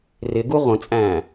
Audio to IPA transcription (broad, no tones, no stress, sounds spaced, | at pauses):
r ɪ ɡ u ʁʷ ə̃ t͡sʼ æ̃ː